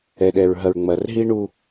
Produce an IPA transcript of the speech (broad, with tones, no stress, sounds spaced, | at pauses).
ɛ˨ ɗ ɛ˨ ɹ ɦ ɐ˨ ɹ ŋ͡m ɐ˨ r ɦ i˦ ɳ u˦